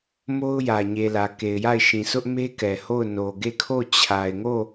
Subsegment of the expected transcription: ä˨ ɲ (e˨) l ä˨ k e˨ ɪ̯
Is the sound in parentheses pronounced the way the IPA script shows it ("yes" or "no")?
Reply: yes